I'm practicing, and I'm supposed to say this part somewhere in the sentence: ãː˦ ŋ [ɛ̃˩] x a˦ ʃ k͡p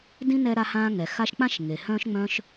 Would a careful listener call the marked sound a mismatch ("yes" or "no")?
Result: yes